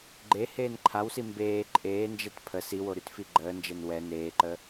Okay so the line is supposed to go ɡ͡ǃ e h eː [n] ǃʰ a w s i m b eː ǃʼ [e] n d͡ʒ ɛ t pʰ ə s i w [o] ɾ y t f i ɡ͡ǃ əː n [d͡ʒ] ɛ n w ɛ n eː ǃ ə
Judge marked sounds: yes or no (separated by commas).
yes, no, yes, yes